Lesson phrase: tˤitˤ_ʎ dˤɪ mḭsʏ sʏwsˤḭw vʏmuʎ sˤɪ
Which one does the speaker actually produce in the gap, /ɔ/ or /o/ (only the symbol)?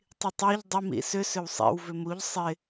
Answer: ɔ